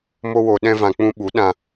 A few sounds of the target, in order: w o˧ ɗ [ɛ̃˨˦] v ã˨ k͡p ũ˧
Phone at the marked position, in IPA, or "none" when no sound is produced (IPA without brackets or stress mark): ɛ̃˧